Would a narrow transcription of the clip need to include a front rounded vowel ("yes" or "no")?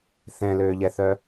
yes